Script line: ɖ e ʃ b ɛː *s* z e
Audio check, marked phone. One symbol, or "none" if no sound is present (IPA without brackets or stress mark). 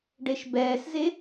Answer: s